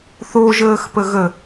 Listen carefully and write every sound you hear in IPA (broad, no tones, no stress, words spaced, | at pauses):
θo ʒəːxpəɣə